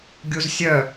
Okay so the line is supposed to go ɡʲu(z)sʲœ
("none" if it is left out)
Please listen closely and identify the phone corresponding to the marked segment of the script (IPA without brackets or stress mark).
z